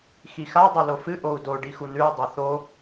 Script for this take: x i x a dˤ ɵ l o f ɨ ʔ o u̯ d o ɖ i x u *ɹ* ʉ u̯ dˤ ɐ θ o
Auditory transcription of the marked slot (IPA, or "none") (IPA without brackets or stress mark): n